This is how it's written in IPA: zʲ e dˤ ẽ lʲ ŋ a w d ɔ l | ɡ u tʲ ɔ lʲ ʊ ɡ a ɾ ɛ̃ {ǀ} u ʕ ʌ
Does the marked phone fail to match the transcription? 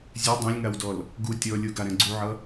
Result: yes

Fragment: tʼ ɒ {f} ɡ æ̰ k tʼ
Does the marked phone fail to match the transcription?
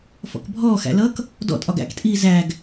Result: yes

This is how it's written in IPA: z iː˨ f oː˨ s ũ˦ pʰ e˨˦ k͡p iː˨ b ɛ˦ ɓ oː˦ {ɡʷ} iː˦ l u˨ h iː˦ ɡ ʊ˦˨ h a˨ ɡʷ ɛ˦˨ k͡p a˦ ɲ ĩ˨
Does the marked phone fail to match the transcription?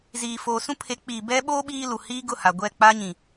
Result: yes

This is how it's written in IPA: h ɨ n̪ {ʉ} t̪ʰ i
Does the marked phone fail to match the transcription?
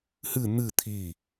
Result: yes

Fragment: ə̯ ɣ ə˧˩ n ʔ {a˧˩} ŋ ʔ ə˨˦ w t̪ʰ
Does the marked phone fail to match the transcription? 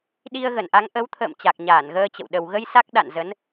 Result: yes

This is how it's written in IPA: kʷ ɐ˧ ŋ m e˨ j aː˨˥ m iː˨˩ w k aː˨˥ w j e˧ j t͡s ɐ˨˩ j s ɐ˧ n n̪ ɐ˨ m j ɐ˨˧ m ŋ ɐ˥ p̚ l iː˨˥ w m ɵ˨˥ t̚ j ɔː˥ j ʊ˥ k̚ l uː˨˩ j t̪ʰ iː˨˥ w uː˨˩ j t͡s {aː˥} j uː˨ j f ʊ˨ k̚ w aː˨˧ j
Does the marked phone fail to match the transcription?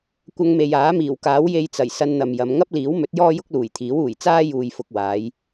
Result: no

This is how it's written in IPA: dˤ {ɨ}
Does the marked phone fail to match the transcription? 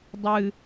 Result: no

